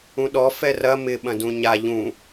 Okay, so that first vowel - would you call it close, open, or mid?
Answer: close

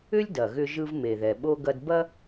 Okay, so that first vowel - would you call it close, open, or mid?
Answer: close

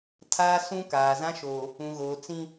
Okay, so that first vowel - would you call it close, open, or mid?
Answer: open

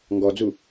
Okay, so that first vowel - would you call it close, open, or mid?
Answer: mid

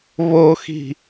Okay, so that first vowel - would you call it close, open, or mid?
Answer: mid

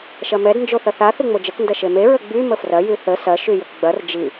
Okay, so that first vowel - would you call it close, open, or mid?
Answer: open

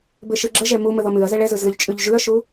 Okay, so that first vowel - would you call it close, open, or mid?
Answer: mid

